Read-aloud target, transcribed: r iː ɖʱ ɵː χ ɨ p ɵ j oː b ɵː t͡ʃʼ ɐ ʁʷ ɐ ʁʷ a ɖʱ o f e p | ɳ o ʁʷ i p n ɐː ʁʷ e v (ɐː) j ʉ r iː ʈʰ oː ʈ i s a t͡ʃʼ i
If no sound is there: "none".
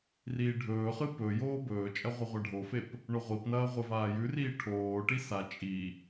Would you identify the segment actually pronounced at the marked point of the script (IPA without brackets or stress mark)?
aː